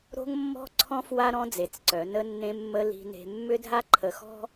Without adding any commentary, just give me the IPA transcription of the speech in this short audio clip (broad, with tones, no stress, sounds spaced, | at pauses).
ɾ o̤˦ ŋ mː ɔ̤˦ ǀʰ ɔ̃˦ f w a˦ ɾ ɔ̃˦ d͡z e˨ t͡s ǀ œ˨˦ n ə˦ nː ẽ˦ mː ə˦ l i̤˦ n e̤˦ mː ʏ˦ dʱ a˦ ǃʰ ə˨ x ɔ̤˦